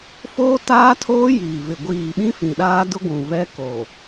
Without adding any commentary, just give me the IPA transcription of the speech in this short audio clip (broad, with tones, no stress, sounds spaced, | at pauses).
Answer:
f oː˦ t aː˦ tʰ oː˦ j iː˨ v ɪ˨ ɡʷ iː˨ ɓ ĩ˦ f ĩ˨ ɗ aː˦ d ʊ˦ ɡʷ ũ˨ v ɛ˦ k o˨